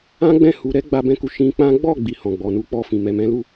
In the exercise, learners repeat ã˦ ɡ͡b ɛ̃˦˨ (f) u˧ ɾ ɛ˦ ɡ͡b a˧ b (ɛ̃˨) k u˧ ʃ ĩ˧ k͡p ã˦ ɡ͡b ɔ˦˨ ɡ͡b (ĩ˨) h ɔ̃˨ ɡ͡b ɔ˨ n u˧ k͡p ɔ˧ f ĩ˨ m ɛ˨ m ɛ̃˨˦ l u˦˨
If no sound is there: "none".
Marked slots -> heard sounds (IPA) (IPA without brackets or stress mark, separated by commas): h, ɛ̃˧, i˨